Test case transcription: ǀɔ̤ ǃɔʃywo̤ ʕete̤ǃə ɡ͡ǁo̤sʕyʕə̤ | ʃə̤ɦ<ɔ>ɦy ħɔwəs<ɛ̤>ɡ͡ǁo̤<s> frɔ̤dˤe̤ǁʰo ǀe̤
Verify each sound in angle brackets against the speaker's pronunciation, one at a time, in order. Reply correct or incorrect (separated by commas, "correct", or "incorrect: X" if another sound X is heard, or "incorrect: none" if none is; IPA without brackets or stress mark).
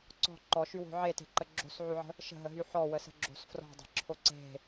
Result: incorrect: ə, incorrect: ə̤, correct